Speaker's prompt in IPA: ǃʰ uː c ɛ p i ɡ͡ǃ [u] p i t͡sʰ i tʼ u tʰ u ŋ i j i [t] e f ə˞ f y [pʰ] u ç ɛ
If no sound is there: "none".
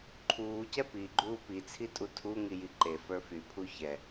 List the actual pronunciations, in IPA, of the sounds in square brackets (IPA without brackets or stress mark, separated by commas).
uː, ǃ, pʰ